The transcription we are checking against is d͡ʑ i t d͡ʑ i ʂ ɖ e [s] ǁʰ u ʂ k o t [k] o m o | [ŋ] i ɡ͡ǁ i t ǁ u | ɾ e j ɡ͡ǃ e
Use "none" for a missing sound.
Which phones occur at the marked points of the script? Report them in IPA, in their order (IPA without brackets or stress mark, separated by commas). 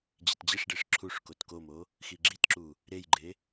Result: ʂ, k, x